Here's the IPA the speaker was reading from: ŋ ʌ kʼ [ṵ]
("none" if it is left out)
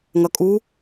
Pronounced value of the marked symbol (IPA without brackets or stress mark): u